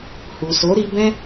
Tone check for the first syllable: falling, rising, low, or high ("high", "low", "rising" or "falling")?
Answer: low